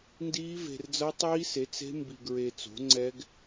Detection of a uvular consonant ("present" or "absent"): absent